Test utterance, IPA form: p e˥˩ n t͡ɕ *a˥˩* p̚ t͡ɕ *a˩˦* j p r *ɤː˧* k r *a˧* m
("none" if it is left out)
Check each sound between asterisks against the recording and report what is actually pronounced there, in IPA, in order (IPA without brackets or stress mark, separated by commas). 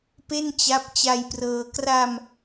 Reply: a˦˥, a˧, ɤː˧, a˧